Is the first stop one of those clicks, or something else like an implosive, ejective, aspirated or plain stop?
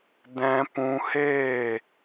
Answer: plain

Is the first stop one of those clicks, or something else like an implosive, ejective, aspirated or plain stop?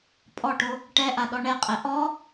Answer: ejective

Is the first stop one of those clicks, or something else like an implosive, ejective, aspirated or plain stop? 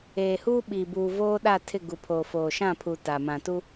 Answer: implosive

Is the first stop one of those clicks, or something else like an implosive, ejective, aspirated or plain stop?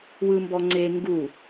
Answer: plain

